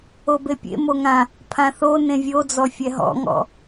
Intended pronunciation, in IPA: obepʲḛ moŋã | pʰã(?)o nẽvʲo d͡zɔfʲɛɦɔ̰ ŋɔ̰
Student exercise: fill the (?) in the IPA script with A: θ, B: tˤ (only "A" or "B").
A